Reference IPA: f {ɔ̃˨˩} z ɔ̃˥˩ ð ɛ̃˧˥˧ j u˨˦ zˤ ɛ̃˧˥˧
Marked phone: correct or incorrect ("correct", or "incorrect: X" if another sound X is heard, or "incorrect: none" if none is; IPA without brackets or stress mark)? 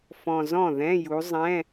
correct